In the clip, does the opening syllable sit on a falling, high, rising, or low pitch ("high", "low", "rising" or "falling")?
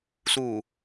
low